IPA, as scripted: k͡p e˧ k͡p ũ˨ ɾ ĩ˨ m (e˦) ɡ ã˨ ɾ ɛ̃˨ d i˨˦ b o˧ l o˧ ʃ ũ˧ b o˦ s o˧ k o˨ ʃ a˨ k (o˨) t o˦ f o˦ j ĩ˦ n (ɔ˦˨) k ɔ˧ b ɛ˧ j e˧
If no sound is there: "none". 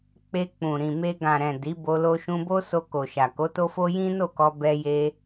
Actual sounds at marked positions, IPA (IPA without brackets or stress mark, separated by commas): e˧, o˨˦, o˦˨